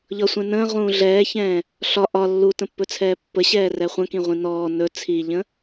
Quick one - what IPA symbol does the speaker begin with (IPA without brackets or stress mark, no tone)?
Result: ʎ